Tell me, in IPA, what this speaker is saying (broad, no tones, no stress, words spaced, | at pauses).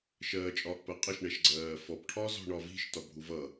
ʃɜːt͡ʃʼɒːʔpɜqʼəʃ ɳɛʃɡ͡ǀɜːfɔp ʈʰɒzɔ̤ɳɒvi̤ʃ tɒbʱuvʌ